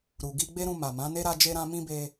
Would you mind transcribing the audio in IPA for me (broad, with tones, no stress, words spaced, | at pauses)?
ɾu˨ ɡi˧ɡ͡be˦ɾũ˧ ma˨mã˨˦ne˦ ɾa˧ d͡ʒe˧ɾã˧ mĩ˦be˧